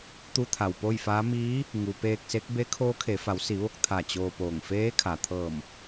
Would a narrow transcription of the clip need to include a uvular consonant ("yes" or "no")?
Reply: no